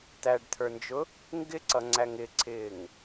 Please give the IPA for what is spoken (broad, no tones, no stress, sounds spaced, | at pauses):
t̪ æ ɖ t̪ʰ ə˞ n d͡ʒ ʊ | ŋ ɡ ɪ ǀ ʌ ŋ͡ǀ æ ŋ ɪ ǀʰ ɪː ŋ